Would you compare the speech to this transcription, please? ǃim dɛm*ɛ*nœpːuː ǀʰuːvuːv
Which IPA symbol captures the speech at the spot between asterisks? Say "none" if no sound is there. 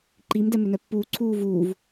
ʏ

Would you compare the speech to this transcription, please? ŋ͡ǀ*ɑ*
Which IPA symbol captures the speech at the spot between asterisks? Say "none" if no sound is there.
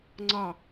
ɑ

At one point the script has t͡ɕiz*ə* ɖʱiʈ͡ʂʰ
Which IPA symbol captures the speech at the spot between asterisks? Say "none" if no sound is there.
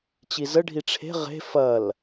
ə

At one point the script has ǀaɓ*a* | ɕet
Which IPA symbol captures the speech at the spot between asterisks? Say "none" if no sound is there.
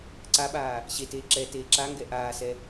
aː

